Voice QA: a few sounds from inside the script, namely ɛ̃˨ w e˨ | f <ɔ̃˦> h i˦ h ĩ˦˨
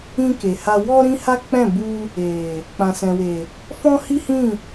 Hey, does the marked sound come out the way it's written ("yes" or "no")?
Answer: yes